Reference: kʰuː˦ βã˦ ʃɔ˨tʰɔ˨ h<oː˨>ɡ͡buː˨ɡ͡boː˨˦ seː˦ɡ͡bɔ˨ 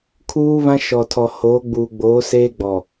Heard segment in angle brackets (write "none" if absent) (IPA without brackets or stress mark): oː˨˦